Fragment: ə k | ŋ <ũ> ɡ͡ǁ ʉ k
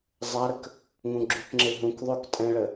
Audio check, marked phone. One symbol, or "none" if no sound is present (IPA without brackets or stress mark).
ũ